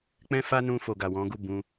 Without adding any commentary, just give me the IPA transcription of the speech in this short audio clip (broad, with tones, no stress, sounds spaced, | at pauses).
k͡p ɛ̃˦ f a˦ n ũ˧ f o˨ ɡ a˨ w ɔ̃˨˦ ɡ u˦˨ b ũ˧